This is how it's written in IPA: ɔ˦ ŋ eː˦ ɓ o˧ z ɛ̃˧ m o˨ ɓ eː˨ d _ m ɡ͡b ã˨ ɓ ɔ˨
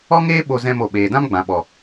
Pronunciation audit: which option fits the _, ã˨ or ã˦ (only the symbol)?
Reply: ã˦